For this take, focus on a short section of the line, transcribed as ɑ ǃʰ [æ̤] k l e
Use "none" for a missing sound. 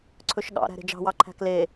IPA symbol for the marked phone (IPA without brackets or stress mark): æ̤